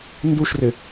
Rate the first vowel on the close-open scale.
close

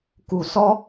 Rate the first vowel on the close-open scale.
close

